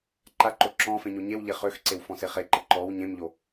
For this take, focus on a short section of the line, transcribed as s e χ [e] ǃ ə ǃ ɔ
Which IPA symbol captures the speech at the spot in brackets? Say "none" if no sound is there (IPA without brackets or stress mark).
e